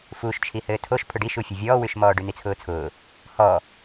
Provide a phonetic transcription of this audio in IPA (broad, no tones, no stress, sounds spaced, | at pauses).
f u ʃ t͡ʃʰ i h ɘː tʰ o ʃ pʰ ʊ ɖ i ʃ u fʲ ɘ vʲ ɔː w ʉ ʃ m ɔː ɖ ʉ n̪ i t͡sʰ ʊː t͡sʰ ʊː | h ɔ